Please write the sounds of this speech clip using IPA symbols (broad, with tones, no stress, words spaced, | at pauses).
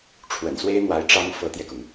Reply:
ʈ͡ʂʰwə̰˨˩nswe˥ɪ̯n̪wa˧˥ɪ̯ ʈ͡ʂɑ˥ŋ fɤ˧˥t̪jɛ˧kʊ˩ŋ